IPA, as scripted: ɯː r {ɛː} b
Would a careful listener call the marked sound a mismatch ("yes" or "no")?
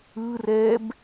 no